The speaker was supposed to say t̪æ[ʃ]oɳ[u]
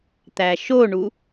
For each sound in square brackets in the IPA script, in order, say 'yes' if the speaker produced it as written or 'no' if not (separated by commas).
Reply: yes, yes